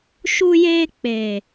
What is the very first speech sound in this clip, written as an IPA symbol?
ʃ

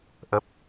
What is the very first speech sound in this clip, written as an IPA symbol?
ʔ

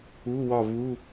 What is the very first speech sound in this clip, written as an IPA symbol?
u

